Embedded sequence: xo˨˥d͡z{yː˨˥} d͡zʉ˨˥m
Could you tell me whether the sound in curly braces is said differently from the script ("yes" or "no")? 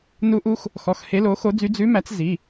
yes